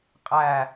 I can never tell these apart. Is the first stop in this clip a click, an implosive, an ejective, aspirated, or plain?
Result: ejective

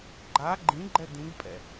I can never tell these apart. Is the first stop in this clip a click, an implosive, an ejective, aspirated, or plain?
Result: click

